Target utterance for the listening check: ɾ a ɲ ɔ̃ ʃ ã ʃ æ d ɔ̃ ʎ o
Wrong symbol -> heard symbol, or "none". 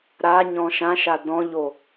æ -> a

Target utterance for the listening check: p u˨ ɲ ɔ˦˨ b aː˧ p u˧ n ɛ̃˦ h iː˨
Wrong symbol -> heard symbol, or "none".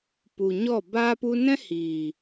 none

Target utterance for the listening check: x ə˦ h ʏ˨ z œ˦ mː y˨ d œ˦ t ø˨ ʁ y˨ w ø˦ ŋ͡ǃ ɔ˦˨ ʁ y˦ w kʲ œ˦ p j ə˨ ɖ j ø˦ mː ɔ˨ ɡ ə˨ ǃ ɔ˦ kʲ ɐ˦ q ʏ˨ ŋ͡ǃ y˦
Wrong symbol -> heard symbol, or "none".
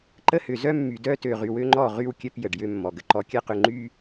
x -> ǃ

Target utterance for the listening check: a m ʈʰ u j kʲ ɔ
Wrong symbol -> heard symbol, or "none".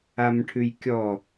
u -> ʉ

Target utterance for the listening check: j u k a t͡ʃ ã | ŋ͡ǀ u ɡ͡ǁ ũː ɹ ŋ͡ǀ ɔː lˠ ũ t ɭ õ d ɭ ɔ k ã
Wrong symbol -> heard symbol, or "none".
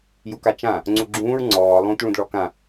õ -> ũ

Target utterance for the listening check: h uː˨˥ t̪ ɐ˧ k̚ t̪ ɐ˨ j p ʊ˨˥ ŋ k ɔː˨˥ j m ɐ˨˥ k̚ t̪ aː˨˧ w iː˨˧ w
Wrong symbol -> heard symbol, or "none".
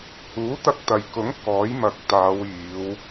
p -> k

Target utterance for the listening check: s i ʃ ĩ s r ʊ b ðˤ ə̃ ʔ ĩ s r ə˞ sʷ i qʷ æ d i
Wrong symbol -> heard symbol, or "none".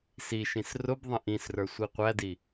none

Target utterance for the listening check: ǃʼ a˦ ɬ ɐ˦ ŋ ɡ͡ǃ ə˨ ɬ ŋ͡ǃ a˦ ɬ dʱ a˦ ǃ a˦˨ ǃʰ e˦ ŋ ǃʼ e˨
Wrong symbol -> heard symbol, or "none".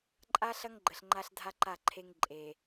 none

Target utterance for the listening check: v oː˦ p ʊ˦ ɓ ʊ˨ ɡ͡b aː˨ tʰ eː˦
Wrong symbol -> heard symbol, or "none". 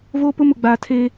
ɓ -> m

